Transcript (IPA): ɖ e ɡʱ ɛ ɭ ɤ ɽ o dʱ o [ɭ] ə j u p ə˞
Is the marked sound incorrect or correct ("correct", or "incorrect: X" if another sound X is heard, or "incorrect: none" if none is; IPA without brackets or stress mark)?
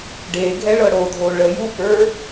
correct